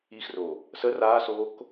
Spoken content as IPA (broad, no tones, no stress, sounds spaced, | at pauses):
i x r o | s ə r aː s oː k